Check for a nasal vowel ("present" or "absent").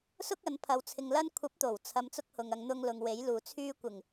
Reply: absent